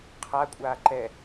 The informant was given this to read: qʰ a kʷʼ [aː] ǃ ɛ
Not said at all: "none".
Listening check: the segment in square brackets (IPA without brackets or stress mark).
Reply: aː